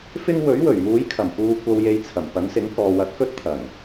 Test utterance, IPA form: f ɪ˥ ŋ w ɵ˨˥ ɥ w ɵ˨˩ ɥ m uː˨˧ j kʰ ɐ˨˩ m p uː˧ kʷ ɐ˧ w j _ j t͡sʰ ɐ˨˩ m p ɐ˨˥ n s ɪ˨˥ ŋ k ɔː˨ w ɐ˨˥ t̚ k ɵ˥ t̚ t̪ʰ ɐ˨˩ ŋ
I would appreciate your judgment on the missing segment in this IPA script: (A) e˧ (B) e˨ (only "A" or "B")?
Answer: A